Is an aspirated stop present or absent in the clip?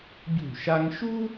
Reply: absent